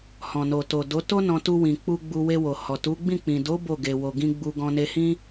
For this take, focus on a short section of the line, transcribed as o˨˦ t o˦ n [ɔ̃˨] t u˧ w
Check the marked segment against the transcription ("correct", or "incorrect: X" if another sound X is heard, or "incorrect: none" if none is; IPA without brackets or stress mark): incorrect: ɔ̃˧